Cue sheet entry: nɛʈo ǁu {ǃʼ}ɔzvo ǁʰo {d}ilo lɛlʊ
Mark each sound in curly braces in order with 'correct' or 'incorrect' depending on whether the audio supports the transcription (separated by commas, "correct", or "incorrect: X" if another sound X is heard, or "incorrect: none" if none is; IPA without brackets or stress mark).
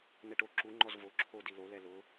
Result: incorrect: ŋ͡ǃ, correct